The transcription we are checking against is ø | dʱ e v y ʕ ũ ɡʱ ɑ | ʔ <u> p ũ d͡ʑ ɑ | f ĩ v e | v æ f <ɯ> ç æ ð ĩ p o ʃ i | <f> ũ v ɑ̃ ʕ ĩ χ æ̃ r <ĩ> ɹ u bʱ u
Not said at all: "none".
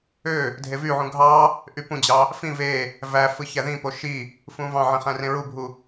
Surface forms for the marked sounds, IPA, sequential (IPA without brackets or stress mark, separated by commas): y, ɯ, f, ẽ